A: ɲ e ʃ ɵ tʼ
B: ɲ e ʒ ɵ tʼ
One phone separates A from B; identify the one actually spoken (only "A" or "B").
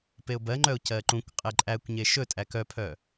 A